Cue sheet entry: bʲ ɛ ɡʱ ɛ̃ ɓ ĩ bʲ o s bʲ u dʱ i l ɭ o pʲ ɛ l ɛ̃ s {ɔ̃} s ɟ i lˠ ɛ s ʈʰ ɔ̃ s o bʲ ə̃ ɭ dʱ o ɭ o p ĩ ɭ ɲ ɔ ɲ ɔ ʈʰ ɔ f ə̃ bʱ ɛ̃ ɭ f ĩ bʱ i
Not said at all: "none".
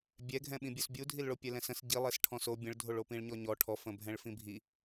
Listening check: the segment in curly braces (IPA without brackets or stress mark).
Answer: ə̃